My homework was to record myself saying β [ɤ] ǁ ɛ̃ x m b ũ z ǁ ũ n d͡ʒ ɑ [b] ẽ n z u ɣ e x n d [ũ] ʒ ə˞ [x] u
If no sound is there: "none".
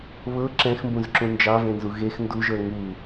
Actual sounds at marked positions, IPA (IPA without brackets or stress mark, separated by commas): ɤ, v, u, ŋ